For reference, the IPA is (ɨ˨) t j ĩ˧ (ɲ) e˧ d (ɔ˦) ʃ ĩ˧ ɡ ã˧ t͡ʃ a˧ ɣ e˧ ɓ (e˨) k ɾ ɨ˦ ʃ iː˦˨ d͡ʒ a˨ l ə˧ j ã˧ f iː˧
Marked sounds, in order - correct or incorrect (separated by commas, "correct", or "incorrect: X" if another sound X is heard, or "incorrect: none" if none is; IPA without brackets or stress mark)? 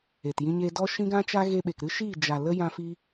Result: incorrect: e˨, correct, correct, correct